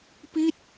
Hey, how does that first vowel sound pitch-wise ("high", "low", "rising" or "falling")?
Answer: falling